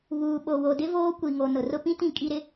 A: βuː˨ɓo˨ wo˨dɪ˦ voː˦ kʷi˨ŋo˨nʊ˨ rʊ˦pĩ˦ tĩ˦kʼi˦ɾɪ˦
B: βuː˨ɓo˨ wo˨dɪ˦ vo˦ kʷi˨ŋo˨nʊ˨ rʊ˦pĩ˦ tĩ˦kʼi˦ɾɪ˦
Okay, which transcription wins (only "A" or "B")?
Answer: A